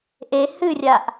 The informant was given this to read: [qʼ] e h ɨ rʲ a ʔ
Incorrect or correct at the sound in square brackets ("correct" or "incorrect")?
incorrect